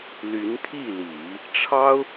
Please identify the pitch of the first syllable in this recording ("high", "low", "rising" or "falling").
rising